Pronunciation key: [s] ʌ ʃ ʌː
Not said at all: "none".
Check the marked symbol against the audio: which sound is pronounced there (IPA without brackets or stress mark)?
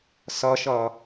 s